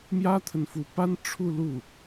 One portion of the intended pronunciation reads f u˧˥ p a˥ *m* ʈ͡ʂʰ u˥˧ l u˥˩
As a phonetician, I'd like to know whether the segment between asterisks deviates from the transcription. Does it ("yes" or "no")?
yes